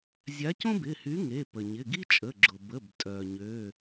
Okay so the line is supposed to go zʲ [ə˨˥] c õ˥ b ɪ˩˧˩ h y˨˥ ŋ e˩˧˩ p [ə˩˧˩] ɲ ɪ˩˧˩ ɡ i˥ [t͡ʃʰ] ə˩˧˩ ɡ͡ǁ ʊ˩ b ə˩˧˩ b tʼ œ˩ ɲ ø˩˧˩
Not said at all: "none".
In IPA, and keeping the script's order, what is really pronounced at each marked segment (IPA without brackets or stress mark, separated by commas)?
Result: a˨˥, ə˩, t͡ʃʼ